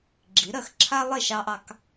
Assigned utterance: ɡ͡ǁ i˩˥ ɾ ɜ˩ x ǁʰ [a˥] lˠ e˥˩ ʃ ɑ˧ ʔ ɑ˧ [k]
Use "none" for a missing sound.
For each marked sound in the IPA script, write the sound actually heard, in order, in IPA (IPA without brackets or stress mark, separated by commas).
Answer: a˥, k